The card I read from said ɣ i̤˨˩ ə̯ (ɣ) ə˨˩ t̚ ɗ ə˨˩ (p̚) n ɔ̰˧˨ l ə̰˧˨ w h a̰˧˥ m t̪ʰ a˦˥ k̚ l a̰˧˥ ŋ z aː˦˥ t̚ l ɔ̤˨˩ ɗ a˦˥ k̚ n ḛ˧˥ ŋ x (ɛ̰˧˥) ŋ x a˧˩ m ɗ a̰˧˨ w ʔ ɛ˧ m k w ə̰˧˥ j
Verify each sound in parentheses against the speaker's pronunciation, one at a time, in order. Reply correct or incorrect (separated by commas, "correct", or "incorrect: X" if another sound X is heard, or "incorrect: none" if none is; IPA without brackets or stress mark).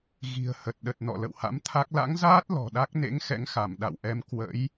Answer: incorrect: h, incorrect: t̚, correct